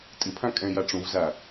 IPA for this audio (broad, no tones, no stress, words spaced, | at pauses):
tʼɪpʰã kʼɛ̃ jaʈ͡ʂũvza